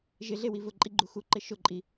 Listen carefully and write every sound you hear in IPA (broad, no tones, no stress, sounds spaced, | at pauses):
ʒ ɪ ɮ e w i v ʊ ǃʼ i ɡ͡ǃ u x u ǃ ɪ ʃ ʊ ǃʼ i